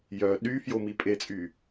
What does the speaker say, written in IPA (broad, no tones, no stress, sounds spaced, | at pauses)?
j œ ɗ y f j o m i pʼ e t͡sʼ y